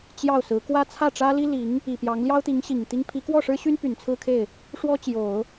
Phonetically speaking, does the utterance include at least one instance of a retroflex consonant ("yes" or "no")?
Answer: yes